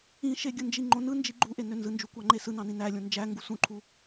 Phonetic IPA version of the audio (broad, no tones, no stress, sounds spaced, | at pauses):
ĩ ʃ e ɡʲ ɯ n d͡ʒ i ŋ͡ǃ õ n ɯ n d͡ʒ i ɡ͡ǃ u ʔ e n ø n z ɯ n d͡ʒ u kʷ ɑ ŋ͡ǃ e s ɯ n ɑ̃ n ĩ n æ lʲ õ n d͡ʒ æ ŋ ɡ u s ũ ǃʰ u